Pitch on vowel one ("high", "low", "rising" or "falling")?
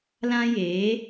high